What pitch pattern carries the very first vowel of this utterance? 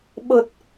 low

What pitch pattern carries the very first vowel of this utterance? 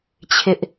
high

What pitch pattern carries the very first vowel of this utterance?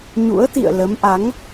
rising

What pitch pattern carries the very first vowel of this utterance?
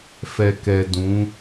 low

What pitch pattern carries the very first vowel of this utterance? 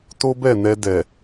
high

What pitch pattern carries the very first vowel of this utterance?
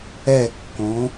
falling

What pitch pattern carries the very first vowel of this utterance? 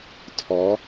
rising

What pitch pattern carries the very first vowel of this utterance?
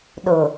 low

